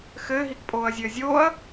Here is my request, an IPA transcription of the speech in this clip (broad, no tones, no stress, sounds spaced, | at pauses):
x ɘː ɦ i k pʼ oː ɐ̯ zʲ ɘː zʲ oː ɐ̯